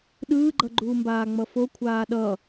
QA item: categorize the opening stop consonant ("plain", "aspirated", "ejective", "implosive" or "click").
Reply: implosive